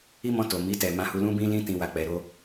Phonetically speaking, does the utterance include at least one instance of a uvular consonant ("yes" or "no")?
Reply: no